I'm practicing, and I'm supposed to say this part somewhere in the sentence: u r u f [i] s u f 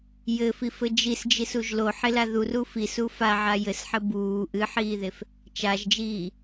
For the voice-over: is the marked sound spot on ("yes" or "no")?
yes